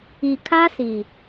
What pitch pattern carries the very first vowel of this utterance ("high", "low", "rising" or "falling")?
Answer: low